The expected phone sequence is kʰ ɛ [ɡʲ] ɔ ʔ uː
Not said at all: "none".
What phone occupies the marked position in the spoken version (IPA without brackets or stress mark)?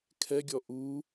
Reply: ɡʲ